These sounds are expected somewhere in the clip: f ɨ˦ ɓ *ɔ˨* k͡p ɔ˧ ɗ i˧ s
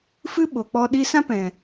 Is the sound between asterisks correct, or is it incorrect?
incorrect